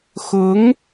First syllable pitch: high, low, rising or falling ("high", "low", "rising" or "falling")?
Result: rising